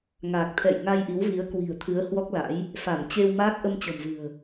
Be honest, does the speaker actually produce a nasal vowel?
no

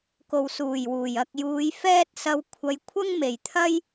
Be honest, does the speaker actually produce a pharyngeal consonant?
no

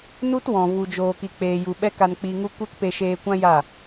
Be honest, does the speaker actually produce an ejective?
no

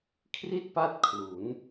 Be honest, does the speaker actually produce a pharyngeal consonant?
no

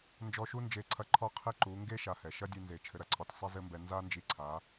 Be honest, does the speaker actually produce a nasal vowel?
no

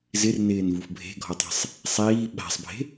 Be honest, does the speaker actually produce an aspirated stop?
no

